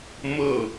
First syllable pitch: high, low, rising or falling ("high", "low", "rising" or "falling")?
falling